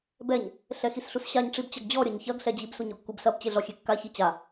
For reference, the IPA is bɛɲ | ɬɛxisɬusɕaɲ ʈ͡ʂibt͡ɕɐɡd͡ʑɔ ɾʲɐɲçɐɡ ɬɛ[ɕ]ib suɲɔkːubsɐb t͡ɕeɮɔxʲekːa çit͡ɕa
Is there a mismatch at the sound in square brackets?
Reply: yes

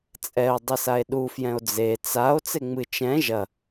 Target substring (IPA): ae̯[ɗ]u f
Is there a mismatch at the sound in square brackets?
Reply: no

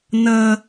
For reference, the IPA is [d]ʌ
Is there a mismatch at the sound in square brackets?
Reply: yes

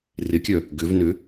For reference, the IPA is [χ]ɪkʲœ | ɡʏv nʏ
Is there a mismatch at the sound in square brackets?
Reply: yes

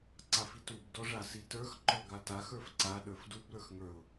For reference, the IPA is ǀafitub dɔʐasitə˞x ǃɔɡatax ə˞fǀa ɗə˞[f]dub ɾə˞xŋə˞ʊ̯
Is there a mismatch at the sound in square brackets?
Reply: no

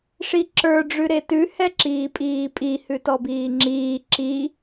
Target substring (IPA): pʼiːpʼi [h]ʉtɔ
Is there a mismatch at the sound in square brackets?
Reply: no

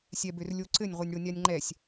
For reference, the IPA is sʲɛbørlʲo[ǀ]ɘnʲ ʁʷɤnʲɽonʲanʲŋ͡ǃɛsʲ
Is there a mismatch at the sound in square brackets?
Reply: no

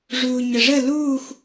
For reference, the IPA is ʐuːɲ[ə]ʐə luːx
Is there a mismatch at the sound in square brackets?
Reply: no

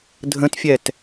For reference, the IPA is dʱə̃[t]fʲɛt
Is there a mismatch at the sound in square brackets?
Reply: no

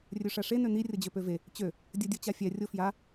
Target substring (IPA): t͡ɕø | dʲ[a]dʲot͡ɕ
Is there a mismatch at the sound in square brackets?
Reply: yes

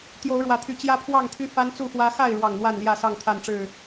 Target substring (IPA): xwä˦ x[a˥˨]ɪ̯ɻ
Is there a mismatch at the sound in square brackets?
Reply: no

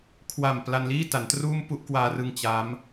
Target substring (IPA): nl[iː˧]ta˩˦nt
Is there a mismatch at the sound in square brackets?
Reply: yes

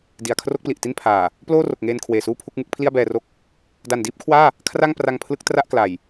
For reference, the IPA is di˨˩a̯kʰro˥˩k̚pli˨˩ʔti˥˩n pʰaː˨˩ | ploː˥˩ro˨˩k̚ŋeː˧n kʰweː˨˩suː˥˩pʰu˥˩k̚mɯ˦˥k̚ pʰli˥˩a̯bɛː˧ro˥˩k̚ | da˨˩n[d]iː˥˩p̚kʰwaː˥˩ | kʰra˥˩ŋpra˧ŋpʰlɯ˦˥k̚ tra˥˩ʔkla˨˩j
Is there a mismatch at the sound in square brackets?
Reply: no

